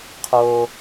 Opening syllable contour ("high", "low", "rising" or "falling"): high